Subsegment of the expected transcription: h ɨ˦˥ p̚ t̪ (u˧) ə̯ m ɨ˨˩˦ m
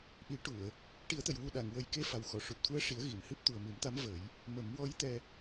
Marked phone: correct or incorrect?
incorrect